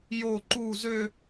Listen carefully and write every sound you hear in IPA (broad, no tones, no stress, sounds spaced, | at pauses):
j o ǃ u z ø